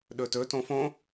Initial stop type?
implosive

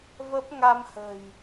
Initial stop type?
plain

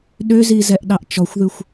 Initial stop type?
implosive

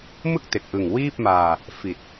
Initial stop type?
plain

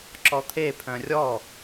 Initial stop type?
click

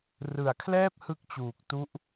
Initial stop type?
aspirated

